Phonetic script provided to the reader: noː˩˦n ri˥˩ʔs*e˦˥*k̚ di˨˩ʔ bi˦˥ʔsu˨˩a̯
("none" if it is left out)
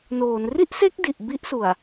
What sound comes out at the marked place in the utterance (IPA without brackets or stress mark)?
e˦˥